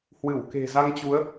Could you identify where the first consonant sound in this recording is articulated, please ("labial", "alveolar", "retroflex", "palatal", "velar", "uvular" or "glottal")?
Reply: glottal